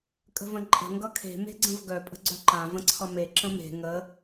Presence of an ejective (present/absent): present